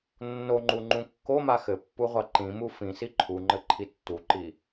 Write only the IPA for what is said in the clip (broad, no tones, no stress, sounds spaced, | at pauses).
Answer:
nː o ŋ͡ǃ u ŋ͡ǃ ũ kː o m a x ɘ pː u ʁʷ a ǃ ĩ m u f ĩ s i ǃʰ u ŋ͡ǃ ɘ ǃʰ i tː u ǃ i